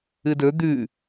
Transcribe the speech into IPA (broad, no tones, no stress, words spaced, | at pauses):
ɨdɵ d̪ʉ